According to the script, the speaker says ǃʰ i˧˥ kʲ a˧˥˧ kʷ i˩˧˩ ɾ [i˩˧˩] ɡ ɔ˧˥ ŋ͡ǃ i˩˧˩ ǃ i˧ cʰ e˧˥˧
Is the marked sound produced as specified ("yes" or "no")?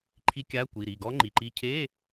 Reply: yes